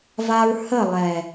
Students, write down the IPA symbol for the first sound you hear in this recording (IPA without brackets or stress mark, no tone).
v